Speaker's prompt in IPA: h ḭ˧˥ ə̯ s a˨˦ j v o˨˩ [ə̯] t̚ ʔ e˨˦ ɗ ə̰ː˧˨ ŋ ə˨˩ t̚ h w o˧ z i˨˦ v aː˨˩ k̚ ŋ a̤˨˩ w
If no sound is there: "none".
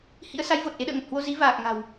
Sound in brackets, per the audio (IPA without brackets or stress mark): none